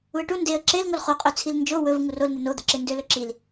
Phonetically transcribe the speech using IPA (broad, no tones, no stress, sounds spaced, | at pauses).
u ə̯ ʈ u n d e ə̯ ǁ e l ŋ o l χ o qʼ ø t͡sʰ i l n d͡ʒ o w ɵ v ŋ u r o l n̪ e n o d̪ œ ǁ e n d ø l ɵ ǁ i l